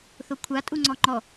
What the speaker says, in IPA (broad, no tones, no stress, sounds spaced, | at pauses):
θ o kʷʰ a tʼ u ŋ͡ǀ ɔ ŋ͡ǃ ɔ